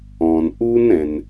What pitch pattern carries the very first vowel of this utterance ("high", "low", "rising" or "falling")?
low